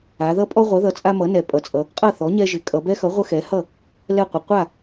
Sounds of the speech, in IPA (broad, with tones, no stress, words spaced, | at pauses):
a˩˧ðʌ˦pʼɔ˦ ʁʷʌ˩˥ðʌ˩˥t͡sʼa˦ mʌ˩˥nɛ˩˧pʼʌ˩˧t͡sʼʌ˩˧ | qʼʌ˥˩θɔ˩˥ ɲɛ˦ʒɪ˩˧ kʼʌ˩˧bɛ˦xʌ˩˥ ʁʷə˦xɛ˩˥hʌ˥˩ | lɛ˥˩qʷɪ˩˧ qʷa˥˩